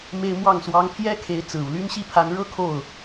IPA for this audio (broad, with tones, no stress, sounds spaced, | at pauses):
m e˥ ɪ̯ m w ɑ˥˩ ŋ s w ɑ˥ ŋ pʰ j ɛ˥ kʰ e˧˥ ɪ̯ t͡s ɹ̩˨˩ u˦ l y˥ n ɕ i˥˩ pʰ a˧˥ n ɻ ɤ˥ kʰ o˥˩ ʊ̯